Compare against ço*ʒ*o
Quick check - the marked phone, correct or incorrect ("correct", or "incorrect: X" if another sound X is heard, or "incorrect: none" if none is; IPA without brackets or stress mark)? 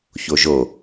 correct